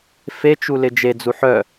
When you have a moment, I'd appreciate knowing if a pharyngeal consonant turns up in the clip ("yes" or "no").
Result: yes